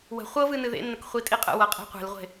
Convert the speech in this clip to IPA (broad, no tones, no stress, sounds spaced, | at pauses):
w ə̤ χʷ ɤ v ɨ n ɨ ð ḛ nː ə k χʷ i tʼ i qʼ ə̰ w ɤ qʼ e̤ qʷ e̤ l ʁʷ e̤